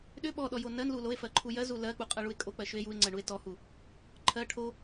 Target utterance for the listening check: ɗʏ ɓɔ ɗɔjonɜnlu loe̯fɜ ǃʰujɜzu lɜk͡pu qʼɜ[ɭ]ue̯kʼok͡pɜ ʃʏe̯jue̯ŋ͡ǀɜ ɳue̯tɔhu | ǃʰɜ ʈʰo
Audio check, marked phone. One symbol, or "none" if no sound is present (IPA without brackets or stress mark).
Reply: ɭ